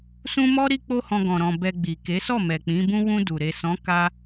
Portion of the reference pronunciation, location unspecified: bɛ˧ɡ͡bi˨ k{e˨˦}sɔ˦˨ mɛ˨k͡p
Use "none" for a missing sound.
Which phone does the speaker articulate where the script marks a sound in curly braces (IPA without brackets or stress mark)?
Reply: e˨˦